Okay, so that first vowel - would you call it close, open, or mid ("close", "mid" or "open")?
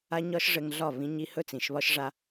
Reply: open